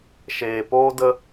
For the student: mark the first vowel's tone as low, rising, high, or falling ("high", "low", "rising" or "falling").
low